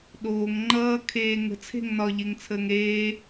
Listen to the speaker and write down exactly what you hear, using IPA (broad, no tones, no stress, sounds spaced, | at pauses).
ɗ oː ŋ ŋ͡ǃ ʌː kʰ eː ŋ ə̤ t͡sʰ e̤ ŋ n ɒ ʎ e ŋ t͡sʰ əː ŋ ɾ eː